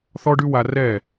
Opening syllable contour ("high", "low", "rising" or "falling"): high